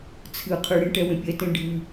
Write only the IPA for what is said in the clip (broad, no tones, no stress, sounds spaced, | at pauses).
t͡sʰ ɨ qʰ ɨ ɽ ẽ ʈ ɛ w ẽ pʲ ɛ t ẽ ɖʱ ɨ